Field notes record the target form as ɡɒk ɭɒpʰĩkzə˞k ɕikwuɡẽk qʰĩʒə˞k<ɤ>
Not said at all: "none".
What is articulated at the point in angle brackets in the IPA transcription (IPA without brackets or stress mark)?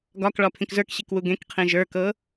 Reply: ɤ